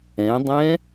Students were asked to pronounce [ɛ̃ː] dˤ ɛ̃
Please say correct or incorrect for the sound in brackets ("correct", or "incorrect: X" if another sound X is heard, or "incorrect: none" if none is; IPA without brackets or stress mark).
incorrect: ɛ̃